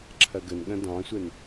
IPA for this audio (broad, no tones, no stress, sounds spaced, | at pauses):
ǁʰ ɐ ɡ ə n ɠ ɐ̃ d ɑ̃ sʷ ɛ n